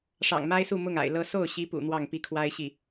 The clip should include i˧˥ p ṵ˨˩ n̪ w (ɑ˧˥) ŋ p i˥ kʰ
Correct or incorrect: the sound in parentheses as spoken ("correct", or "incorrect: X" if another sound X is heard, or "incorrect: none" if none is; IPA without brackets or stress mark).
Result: incorrect: ɑ˥˩